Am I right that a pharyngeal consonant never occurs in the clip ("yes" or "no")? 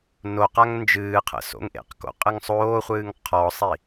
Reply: yes